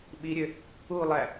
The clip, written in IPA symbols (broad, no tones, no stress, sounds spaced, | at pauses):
ɓ i ɾʲ ø | u lˠ æ